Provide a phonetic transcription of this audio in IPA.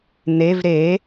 n̪ e v ɾ e

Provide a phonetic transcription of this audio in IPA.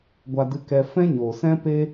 ɡʷ a˧ d ɨ˧ k ɛ˧ f ɛ̃˦ ɲ oː˨ s ɛ̃˦ p e˦

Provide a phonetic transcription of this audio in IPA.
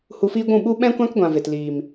h u˧ f iː˦ ɡʷ ũ˦˨ ɓ u˦ ɓ ɛ̃˦ kʷ ã˦ k ɡʷ ã˨ v e˨ t l iː˨ m

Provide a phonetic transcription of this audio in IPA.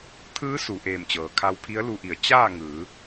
t̪ʰ ɯː˧˥ s u˩ ʔ eː˧˩ m t͡ɕ ɤː˩ kʰ a˧ w pʰ i˧˥ ə̯ l u˧ ʔ i˩˧ ə̯ t͡ɕ aː˥˨ ŋ ɯː˩˧

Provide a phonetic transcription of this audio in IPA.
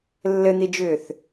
lː ɘ n̪ i d͡ʒ ʏː θ

